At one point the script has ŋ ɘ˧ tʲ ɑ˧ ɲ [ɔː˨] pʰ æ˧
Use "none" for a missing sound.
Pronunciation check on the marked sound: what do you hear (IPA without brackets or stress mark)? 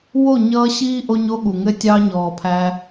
ɔː˨